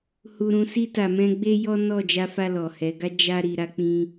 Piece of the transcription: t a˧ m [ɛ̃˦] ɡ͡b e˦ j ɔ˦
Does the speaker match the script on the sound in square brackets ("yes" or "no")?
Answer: yes